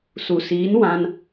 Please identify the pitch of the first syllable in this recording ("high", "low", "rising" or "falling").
low